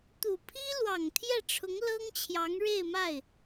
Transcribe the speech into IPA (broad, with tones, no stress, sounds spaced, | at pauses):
t̪ u˨˩ pʰ i˥ l w ɑ˨˩ ŋ t̪ʰ j ɛ˥˩ ʈ͡ʂʰ ʊ˧˥ ŋ l ɤ˥ ŋ t͡ɕʰ j ɑ˧˥ ŋ ɻ e˥˧ ɪ̯ m a˥˩ ɪ̯